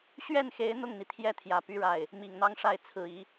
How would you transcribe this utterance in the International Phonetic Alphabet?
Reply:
ɕ ɥ ɛ˥˩ n x e˧˥ ɪ̯ n̪ ʊ˥˩ ŋ n̪ i˩ t̪ʰ j ɛ˥˩ t̪ʰ j ä˨˩ p y˥ ɻ a˥˩ ɪ̯ | m i˨˩ ŋ n̪ ɑ˥ ŋ ʂ a˥˩ ɪ̯ t͡sʰ ɹ̩˨˩ i˧˥

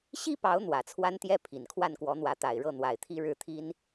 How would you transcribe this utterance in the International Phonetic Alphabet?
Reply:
ɕ i˥ p ɑ˧˥ ʊ̯ n̪ w ä˨˩ t͡sʰ w a˥ n t̪ j ɛ˥ pʰ i˨˩ n kʰ w a˥˩ n k w ɔ˧˥ n̪ w ä˧˥ t̪ a˨˩ ɪ̯ ɻ ɤ˥˩ n̪ w a˨˩ ɪ̯ t̪ʰ i˥ ɻ ɻ̩˥˩ t̪ʰ i˥ n

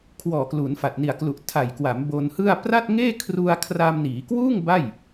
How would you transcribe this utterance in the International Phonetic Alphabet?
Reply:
kʰ w ɔː˨˩ k l u˩˦ n f a˨˩ t̚ n i˨˩ a̯ k l u˨˩ ʔ tʰ a˨˩ j k w a˩˦ m b o˧ n h ɯ˥˩ a̯ p r a˥˩ t̚ ŋ eː˥˩ kʰ r u˧ a̯ kʰ r aː˧ m n iː˩˦ k w uː˥˩ ŋ b a˥˩ j

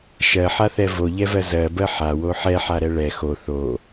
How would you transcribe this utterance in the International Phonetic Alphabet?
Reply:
ʃ ɜ ħ a θ ɛ v o ʎ ɛ v ɜ z ɜ b ɜ ħ a w o ħ ɛ ħ a ɾ ɛ ɭ ɛ x o θ o

